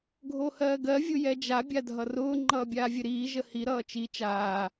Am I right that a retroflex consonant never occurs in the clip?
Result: yes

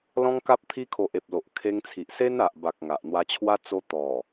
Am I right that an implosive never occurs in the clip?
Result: yes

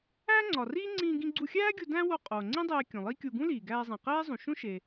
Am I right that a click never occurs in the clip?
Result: no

